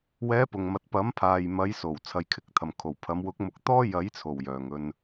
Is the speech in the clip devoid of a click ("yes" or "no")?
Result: yes